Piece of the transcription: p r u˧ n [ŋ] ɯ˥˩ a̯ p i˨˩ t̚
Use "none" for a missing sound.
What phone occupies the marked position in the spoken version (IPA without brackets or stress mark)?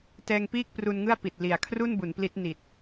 ŋ